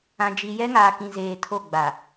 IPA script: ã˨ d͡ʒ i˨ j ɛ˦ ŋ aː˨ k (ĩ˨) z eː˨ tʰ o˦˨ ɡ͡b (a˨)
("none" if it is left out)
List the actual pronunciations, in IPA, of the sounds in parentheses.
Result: ĩ˨, a˨

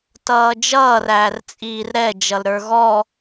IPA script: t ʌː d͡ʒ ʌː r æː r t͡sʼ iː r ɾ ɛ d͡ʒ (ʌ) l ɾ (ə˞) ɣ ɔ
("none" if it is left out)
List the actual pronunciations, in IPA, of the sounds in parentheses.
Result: ʌ, ə˞

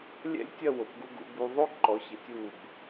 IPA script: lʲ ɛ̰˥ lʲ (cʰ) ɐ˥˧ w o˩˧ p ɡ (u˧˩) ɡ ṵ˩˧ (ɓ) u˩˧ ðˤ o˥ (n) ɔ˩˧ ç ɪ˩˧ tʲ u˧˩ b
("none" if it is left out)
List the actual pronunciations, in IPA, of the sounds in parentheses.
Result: tʲ, u˧, b, ǃ

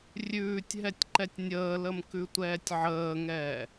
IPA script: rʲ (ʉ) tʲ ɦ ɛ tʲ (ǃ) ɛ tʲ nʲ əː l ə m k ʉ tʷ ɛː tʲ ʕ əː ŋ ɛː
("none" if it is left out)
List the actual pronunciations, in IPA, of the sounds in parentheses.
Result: ʉː, ǃ

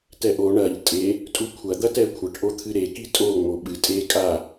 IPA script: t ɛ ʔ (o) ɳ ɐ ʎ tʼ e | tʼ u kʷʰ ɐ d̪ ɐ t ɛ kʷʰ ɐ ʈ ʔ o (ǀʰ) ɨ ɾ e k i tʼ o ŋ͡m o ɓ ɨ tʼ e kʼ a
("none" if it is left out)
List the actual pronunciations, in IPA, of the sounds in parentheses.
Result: o, t̪ʰ

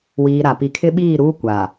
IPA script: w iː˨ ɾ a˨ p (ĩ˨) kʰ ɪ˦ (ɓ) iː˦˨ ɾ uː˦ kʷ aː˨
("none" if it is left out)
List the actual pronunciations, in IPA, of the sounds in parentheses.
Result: i˨, ɓ

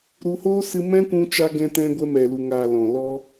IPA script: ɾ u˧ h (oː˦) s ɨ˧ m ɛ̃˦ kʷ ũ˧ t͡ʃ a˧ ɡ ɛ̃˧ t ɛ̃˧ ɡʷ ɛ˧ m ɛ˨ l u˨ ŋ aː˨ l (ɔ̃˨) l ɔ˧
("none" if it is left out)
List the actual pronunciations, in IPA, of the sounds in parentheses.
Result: oː˦, ɔ̃˨

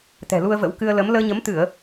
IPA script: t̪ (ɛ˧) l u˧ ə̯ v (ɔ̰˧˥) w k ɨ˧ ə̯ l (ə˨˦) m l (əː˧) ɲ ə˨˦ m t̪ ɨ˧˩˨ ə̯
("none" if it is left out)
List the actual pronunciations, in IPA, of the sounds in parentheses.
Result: ɛ̤˨˩, ə̰˧˥, ə˨˦, əː˧

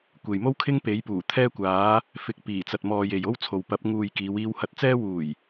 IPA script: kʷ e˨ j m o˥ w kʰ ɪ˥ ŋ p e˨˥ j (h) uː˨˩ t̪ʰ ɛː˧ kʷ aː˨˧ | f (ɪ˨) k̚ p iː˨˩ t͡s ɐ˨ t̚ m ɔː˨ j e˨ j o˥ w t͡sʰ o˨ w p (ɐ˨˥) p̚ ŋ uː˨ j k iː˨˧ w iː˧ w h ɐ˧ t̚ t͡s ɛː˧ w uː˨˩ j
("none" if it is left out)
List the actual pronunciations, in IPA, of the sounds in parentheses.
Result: p, ɪ˨, ɐ˨˥

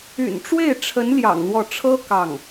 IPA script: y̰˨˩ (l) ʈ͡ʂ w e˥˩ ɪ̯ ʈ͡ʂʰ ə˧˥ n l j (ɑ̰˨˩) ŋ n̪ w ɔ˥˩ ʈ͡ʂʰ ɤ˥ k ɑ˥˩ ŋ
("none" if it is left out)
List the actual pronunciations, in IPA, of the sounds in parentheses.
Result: n, ɑ̰˨˩

